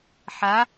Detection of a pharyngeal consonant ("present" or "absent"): present